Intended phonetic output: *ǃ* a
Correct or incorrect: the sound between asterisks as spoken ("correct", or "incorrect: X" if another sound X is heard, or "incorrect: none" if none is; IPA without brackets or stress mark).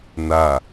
incorrect: n